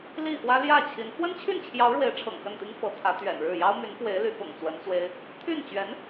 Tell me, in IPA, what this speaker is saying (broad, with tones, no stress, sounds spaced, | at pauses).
l i˥˩ x w ä˥ l j ä˥˩ t͡ɕʰ i˧˥ n x w ə˥ n t͡ɕʰ y˥˩ n t͡ɕʰ j ɑ˧˥ ʊ̯ ɻ w e˧˥ ɪ̯ ʈ͡ʂʰ ɤ̰˨˩ ŋ x ə˥˩ n t̪ i˥ ŋ f ɤ˧˥ t̪ʰ ä˧˥ t̪ ɥ ɛ̰˨˩ n ɻ ɻ̩˥˩ j ɑ˥ ʊ̯ m y˧˥ n f w e˧˥ ɪ̯ l y˧˥ p ʊ̰˨˩ ŋ t͡s w ə˧˥ n t͡s w e˥ ɪ̯ | t̪ʰ y˥˩ n t͡ɕ ɥ ɛ˧˥ n